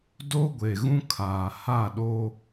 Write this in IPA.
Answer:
d o˦ ɡʷ e˨ ɣ ũ˦ kʰ aː˨ h a˦˨ ɗ o˦

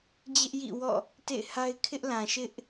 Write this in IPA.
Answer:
d͡ʑ ɪ˦ ʔ j ḭ˦˨ w ɔ̰˦˨ | t ḛ˦˨ ɪ̯ h a˦ ɪ̯ kʰ ɪ˦ ʔ l ã˨ ʃ ɪ˦ ʔ

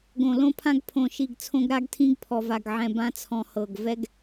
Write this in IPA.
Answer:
ɡ õ˨ l õ˦ pʰ ã˦ ɡ pʰ õ˨ ʃ i˨ ɡ t͡sʰ õ˦ ɡ ɾ a˦ ɡ tʰ ĩ˦ ɡ pʰ ɔ˨ v a˨ ɡ ʕ ɛ̃˨ b ã˦ t͡sʰ ɔ̃˨ h ɤ˨ ɡ v ɛ˦ ɡ

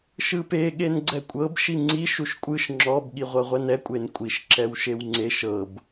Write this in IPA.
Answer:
ʃ ɯ p e ɠ e n ɡ͡ǀ ɛ kʷʼ ɤ b ʃ i ŋ͡ǀ i ʃ u ʃ kʷʼ ɯ ʃ ŋ͡ǁ ɔ b ɠ i ʁʷ ɤ ʁʷ ɛ n ɛ kʷʼ e n kʷʼ i ʃ ǁ ɛ w ʃ e w ŋ͡ǀ e ʃ ɤ b

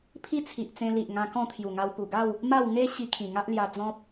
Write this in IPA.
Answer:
pʰ i˦ t͡sʰ i˨ ʔ t͡s ẽ˧ l i˨ ʔ ŋ ã˧ k ɔ̃˥˧ t̪ʰ j u˨˩ ŋ a˧ w p u˨˩ ɡ a˥˧ w | m a˥˧ w ŋ e˦ ɕ i˧ kʰ ĩ˨˩ ŋ a˦ ʔ l j a˧ d͡z ɔ̃˦ p̚

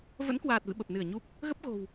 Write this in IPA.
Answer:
v ə̰˧˥ n k w aː˨˩ t̚ v ɨ̰˧˨ ɓ ə˨˩ p̚ n ɨ˧˩ ə̯ ɲ u˦˥ p̚ | ɣ ə˦˥ p̚ ɣ o̤˨˩ w

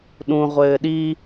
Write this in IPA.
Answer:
ɗ ũ ʁʷ ɘː ɗ i

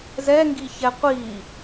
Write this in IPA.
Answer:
z ɛ ŋ ɡ i ç ɛ qʷ i

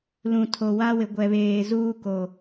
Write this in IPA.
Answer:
l ũ˨ tʰ o˨ w a˦ w ɪ˨ ɡʷ ɛ˨ β eː˨ z uː˦ k o˨

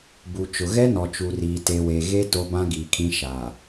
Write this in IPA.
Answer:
b u˨ t͡ʃ ʊ˨ ɣ ɛ˦ n ɔ˨ t͡ʃ u˨ r iː˨ t e˨ w e˨ ɣ e˦ t o˦ b ã˦ ɡ iː˨ kʰ ĩ˦ ʃ aː˨

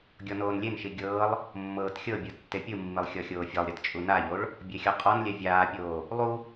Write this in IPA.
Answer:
ɡʲ ɔ n oː n lʲ e n ʃ i ɡʲ ɤː lˠ | mː ɤː t xʲ ɤ bʲ ɯ tː e pʲ ɯ mː i lˠ xʲ ɔ xʲ oː fʲ ɤ lˠ ɾʲ e t t͡ʃʼ u n a ʎ o ɭ | bʲ e xʲ ɔ qʼ ɔ n lʲ ɛ vʲ aː pʲ oː | lˠ u

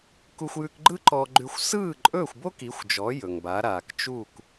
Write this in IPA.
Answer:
k u˧ xʷ j ʉ˧ k ɡ͡ǃ ɯ˥ ǃ ɔ˧ ɡ͡ǃ ʉ˧ xʷ s ɯː˥˩ ǃʼ ɵː˥˩ xʷ b o˥ k i˩˥ xʷ d͡ʒ ɔ˩˥ j ɵ˩ ŋ b a˩˥ ɾ aː˩ k t͡ʃ uː˥˩ k

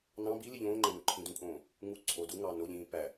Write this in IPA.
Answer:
n ɑ̃ b i l i ʎ õː ŋ͡ǃ æ̃ n u ǃʰ ĩ d ũ kʼ õː | ŋ u ǀʰ o d u ŋ ɑ n o ʎ ĩː p æ

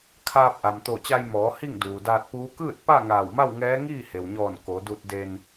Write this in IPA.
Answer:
kʰ aː˧ p̚ ʔ a˩ m t̪ o˧˩ t͡ɕ a˧ j m ɔː˩˧ h i˥˨ ŋ d uː˩ d aː˧ t̚ p uː˧˥ k ɯː˥˨ t̚ p a˥˨ ŋ aː˧˩ w m a˥˨ w ŋ ɛː˧˥ ŋ iː˥˨ h e˩ w ɲ ɔː˧˩ n k o˩˧ d u˧ t̚ d e˧ n

